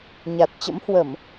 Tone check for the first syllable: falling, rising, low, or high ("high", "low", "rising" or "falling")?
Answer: low